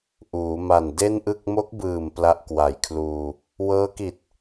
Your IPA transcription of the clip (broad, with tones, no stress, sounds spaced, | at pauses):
ʔ uː˩˦ m a˨˩ n d e˥˩ n ʔ ɯ˥˩ k̚ m o˦˥ k̚ b ɯː˨˩ m p l a˦˥ ʔ k w a˨˩ j kʰ l uː˧ | w ɤː˦˥ k i˨˩ t̚